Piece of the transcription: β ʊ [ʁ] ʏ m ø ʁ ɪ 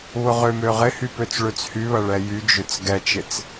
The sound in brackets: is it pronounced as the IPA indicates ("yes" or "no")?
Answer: yes